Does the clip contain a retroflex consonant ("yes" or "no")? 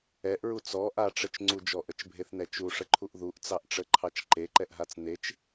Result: yes